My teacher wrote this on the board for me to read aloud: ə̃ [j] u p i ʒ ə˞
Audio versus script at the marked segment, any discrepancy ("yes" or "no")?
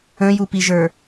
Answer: no